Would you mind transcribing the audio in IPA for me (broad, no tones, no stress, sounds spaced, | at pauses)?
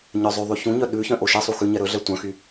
ɲ œ zˤ ʉ ðˤ y ç ũ ɲ œ ɗ ʉ ç œ̃ ʔ o ʃ ɛ sˤ u x ʉ ɲ ɛ ɾ ɵ ɮ ɛ tʷ œ̃ x y